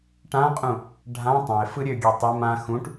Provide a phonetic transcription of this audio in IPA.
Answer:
ʈ ã qʼ ũ | ɖʱ ã tˤ ã ɪ̯ f ɯ ɾʲ ø ɡʲ ø tˤ ɯ m ã x ũ ʈ

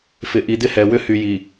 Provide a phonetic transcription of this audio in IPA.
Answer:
f ɪ˨ ʔ i˨ d ɪ˦ h ɛ˨ w ʏ˦ h y˨ j i˨

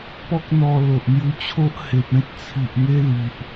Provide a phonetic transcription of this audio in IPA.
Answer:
p ɔ˦ k̚ n̪ ɔ˧ l o˨ ʔ n̪ j u˧ t͡ɕʰ o˦ ʔ h e˨ p̚ ẽ˦ t̚ t͡sʰ i˨ ʔ ŋ e˦ l i˨ ʔ

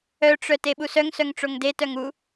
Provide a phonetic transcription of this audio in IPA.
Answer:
œ ʈ͡ʂ œ t e ɓ u s œ ŋ s œ ŋ ʈ͡ʂ o ŋ d e t œ ŋ u

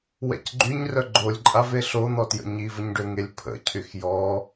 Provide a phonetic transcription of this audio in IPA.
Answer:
w ɛ̰ c ɡ͡ǃ y ɲ r œ ɡ͡ǃ o lʲ ǃʼ a v e ɬ o n̪ ɔ t j ə̰ ɲ i v ə ɲ ɖ ø ŋ e lʲ pʰ ə̰ cʰ y x j ɔ

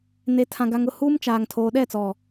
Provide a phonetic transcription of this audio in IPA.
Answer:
n e˨ tʰ ã˨ ɡ a˨ ŋ ʊ˦˨ h uː˦ m t͡ʃ aː˨ ŋ tʰ oː˨ ɗ ɛ˦˨ t͡s ɔ˨

